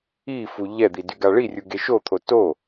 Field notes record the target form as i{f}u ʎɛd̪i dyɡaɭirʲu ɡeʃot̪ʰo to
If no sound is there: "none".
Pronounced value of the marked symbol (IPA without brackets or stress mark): f